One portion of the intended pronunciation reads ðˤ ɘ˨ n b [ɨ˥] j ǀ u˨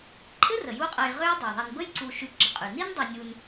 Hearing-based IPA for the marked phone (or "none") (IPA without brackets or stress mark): ə˥